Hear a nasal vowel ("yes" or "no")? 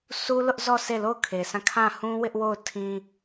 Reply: yes